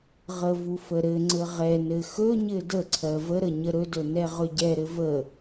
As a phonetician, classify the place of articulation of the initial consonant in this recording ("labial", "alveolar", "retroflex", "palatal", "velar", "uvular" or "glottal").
uvular